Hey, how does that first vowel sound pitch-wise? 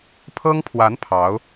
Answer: high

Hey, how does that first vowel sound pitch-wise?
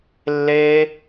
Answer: high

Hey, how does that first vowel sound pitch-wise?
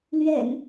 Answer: low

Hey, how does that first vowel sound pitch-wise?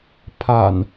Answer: low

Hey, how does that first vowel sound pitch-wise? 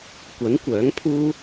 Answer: rising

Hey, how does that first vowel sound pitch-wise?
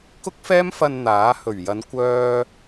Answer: high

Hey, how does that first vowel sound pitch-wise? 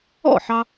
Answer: falling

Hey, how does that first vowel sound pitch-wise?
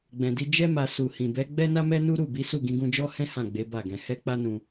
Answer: low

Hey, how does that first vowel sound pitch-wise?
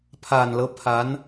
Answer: low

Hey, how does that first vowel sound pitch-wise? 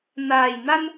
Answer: low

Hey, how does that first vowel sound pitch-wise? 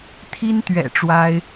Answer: high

